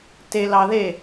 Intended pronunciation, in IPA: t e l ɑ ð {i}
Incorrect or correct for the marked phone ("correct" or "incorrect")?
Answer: incorrect